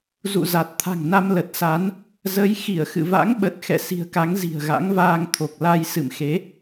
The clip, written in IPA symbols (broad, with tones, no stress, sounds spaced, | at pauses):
z ṵ˧˨ z a˨˩ t̚ t̪ʰ a̤˨˩ ŋ n a˧ m l ə˨˩ t̚ s a˨˦ n | z ə˨˦ j x i˧˩ ə̯ x ɨ̰˧˨ v a̰˧˥ ŋ ɓ ə˨˩ t̚ x ɛ̰˧˨ s i̤˨˩ ə̯ k a˨˦ ŋ z i̤˨˩ ə̯ ɣ a̰˧˥ ŋ v aː˧ ŋ t̪ʰ o˨˩ k̚ l a˧ j s ɨ̰˧˨ m x e˨˦